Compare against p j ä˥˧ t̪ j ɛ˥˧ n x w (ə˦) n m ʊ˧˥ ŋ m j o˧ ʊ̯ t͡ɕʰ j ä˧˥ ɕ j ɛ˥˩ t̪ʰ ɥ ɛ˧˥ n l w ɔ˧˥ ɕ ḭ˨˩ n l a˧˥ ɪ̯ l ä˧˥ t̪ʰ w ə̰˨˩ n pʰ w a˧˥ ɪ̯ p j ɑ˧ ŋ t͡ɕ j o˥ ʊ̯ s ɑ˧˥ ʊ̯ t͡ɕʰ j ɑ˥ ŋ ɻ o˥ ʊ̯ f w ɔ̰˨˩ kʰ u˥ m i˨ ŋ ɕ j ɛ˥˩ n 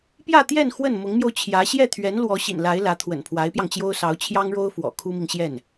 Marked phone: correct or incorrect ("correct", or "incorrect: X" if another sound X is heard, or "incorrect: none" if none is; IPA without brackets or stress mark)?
incorrect: ə˥˩